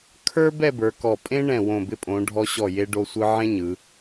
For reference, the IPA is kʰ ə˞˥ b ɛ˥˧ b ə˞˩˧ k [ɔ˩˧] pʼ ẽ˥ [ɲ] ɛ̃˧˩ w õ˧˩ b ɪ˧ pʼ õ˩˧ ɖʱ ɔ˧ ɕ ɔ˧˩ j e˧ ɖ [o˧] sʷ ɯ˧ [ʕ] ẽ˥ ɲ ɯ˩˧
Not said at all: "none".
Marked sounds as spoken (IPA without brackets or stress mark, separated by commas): ɔ˧˩, ɳ, o˧, ʕ